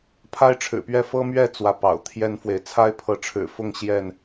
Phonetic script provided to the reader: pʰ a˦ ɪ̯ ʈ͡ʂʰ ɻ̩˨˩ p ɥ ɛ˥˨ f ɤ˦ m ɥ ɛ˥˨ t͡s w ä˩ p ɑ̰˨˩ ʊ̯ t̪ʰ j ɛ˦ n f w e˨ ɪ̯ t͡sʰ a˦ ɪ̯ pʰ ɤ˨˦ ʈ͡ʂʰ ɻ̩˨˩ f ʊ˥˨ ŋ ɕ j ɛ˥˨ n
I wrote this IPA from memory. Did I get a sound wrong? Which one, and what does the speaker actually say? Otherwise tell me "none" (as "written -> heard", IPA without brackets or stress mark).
none